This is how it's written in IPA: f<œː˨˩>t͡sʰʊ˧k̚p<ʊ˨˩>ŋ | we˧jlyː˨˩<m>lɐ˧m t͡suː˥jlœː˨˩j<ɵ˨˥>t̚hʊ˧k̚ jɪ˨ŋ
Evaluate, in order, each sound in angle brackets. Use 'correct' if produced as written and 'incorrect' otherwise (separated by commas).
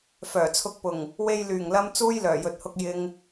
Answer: correct, correct, incorrect, incorrect